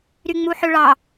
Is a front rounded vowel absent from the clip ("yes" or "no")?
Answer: no